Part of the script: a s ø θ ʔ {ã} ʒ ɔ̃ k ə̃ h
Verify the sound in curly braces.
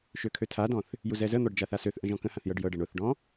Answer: incorrect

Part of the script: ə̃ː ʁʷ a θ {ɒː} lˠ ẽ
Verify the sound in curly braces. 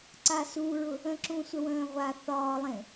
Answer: correct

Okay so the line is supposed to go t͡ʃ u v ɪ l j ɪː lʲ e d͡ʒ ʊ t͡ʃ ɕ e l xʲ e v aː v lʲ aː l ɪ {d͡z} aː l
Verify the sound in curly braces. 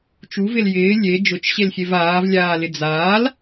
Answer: correct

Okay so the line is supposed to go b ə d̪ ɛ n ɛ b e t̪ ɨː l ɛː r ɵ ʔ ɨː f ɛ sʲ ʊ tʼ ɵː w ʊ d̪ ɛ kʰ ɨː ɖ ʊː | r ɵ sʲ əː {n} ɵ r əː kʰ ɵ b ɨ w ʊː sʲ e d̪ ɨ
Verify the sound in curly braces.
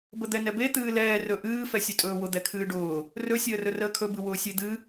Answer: incorrect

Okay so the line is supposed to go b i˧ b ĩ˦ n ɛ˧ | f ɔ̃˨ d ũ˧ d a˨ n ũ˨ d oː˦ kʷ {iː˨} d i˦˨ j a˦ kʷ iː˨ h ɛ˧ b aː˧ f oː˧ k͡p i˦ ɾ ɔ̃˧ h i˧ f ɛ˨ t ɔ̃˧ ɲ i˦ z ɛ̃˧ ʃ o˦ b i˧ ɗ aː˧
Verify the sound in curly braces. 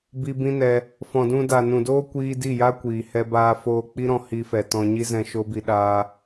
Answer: incorrect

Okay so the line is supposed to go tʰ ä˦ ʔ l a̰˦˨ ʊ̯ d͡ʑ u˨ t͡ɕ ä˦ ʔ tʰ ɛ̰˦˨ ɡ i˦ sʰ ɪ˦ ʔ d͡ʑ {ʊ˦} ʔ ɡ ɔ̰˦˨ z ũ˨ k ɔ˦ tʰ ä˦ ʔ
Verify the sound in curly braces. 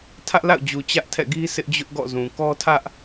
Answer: correct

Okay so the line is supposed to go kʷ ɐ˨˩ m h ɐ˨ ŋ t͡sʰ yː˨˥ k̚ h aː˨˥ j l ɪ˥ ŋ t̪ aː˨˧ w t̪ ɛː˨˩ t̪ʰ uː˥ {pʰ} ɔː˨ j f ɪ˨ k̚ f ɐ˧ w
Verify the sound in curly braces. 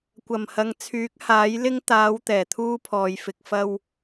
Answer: correct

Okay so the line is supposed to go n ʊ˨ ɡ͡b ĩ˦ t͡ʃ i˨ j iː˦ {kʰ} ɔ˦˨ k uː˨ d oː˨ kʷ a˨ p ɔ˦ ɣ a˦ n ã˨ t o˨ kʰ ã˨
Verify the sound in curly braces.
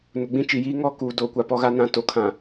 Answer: incorrect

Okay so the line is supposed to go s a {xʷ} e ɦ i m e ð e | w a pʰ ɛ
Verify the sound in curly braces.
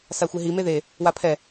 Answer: correct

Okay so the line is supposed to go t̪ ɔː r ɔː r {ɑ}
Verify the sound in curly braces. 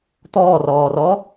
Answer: incorrect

